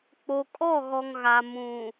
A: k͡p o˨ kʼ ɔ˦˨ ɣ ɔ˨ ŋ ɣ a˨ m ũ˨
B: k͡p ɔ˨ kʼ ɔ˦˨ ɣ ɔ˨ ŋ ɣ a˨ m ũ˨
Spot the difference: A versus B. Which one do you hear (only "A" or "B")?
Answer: A